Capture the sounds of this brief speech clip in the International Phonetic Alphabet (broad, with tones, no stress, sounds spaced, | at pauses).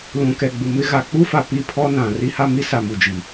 l ũ˨ k ɛ˨ ɡ͡b u˨ m ɪ˦ ɣ a˨ k͡p u˦ f a˨ p i˦ pʰ ɔ˦ n ã˨ r i˦ h a˦ m i˦ s a˨ m u˨ d͡ʒ i˨